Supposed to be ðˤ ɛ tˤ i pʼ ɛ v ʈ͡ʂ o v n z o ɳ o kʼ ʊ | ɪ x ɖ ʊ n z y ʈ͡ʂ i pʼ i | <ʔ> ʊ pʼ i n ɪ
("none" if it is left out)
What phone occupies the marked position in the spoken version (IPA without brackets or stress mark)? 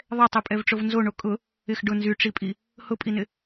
h